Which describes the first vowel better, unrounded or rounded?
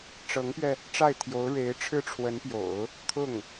unrounded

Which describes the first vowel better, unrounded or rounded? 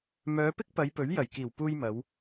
rounded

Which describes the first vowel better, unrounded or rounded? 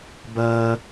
unrounded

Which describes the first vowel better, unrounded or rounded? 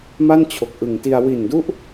unrounded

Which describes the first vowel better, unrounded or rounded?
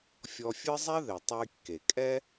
rounded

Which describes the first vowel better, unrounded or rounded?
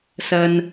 unrounded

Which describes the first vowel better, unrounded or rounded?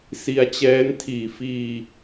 unrounded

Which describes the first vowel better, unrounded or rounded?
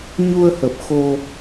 rounded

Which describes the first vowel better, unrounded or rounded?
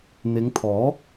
unrounded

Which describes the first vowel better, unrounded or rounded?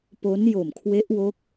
rounded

